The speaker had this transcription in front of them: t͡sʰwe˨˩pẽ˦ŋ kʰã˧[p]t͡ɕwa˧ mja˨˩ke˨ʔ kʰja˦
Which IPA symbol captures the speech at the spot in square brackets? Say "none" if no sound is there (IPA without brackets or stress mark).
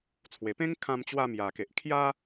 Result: m